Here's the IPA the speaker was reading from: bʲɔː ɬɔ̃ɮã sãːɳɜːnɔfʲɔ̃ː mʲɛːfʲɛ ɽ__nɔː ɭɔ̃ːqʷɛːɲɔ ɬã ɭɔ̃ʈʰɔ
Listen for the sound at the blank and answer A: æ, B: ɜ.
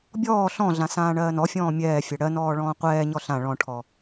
B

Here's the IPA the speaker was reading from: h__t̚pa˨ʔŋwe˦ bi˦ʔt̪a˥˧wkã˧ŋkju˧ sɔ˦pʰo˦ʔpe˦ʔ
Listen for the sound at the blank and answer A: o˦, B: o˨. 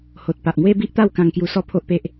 B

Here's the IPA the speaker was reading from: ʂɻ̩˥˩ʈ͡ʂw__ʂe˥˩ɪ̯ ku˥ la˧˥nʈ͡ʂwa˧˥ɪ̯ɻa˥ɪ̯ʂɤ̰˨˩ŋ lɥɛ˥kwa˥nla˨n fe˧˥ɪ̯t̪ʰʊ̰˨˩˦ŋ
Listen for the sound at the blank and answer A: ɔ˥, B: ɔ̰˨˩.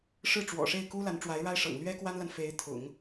B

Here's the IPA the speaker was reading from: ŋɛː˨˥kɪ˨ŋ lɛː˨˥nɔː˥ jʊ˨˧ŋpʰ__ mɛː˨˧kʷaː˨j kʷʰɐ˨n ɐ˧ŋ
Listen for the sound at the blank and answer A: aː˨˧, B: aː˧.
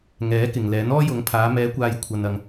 A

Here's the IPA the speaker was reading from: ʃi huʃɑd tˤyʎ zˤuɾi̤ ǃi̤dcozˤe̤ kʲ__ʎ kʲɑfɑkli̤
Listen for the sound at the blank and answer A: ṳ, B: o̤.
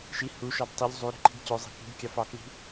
A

